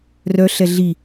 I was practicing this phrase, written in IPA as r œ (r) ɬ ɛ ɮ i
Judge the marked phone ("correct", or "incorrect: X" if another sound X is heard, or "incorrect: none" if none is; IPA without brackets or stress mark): incorrect: none